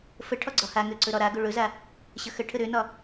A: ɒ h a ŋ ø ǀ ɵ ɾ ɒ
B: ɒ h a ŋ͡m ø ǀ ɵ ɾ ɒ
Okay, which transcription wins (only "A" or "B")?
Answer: A